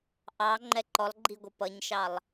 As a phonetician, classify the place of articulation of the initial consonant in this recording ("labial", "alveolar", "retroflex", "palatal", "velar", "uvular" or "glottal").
glottal